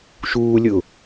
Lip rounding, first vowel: rounded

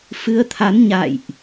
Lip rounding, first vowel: unrounded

